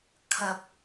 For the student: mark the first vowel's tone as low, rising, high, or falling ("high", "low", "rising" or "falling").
low